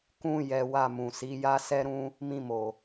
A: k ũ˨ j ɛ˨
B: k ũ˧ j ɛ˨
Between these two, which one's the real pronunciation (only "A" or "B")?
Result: B